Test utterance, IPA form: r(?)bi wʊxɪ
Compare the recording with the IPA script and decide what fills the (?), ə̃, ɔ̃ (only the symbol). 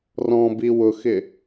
ɔ̃